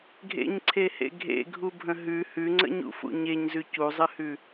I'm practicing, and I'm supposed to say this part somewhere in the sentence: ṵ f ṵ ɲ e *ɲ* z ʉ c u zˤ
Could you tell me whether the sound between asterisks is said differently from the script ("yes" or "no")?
no